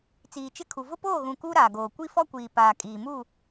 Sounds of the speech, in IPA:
t͡s iː˨ t͡ʃ ɪ˦ kʰ u˨ v ʊ˦ p oː˦˨ ɣ ũ˨ k u˦ ɾ aː˨ ɡ oː˨ kʷ i˦ f ɔ˦ kʷ iː˨ p aː˨ kʼ iː˨ m u˦˨

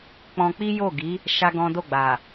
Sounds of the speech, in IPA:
k͡p ɔ̃˧ k͡p i˦ j o˦˨ ɡ i˨˦ | ʃ a˦ ɡ ɔ̃˦ d o˦˨ ɡ͡b a˨

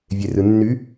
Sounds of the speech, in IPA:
vʲ e r ɯ nː y

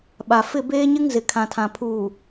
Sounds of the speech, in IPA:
ɓ a˨ f ɪ˦˨ b eː˦ ɲ ɪ˦ ŋ z ɪ˨ kʰ ã˨ tʰ ã˨ pʰ uː˨

